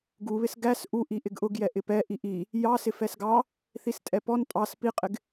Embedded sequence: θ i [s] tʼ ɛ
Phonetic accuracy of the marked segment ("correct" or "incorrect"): correct